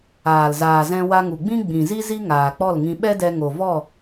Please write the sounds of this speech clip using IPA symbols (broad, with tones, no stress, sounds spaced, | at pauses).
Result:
aː˨ l z aː˨ z ɛ̃˧ w a˧ ŋ u˨ ɡ͡b ĩ˦ ɡ͡b ĩ˨ z i˦ z i˦ ŋ aː˨ k͡p ɔ˦˨ l ŋ ĩ˧ ɓ ɛ˦ d ɛ˧ ŋ o˨ v ɔ˦˨